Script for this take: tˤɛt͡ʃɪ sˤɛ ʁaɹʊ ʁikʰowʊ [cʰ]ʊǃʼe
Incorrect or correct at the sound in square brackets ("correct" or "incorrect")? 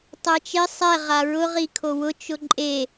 incorrect